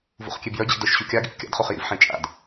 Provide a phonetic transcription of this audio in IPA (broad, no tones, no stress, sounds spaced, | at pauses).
v ṵ χ kʲ e b j œ d͡ʑ ḭ d œ ʃ ɕ u kʲ a ɡ ḭ θ kʲ a̰ d χ u χ j ḭ v ħ ẽ t͡ʃʼ a̰ d